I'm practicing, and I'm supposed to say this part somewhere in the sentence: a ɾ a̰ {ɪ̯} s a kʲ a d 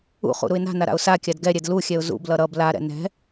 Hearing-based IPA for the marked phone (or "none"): ʊ̯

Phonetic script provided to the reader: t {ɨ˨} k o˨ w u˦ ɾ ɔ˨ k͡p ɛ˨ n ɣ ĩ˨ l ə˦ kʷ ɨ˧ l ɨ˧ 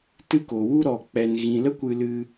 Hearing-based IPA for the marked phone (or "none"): ɨ˦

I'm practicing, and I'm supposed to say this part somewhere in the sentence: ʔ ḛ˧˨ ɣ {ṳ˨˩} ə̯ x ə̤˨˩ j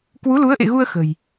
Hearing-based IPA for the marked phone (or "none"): u˧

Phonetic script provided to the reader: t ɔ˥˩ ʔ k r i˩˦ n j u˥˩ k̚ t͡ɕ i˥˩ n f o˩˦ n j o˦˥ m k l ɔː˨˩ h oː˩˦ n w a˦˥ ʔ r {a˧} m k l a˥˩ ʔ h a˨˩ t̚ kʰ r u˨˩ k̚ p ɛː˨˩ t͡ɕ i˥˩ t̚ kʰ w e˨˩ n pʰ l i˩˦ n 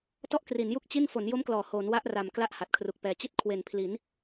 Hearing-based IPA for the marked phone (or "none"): a˨˩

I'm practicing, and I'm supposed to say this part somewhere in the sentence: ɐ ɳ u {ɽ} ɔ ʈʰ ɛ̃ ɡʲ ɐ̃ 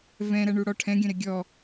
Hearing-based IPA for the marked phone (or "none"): ɽ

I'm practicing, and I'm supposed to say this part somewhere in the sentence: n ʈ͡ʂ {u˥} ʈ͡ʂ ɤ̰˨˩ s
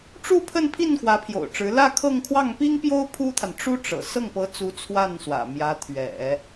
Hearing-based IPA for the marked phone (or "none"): u˥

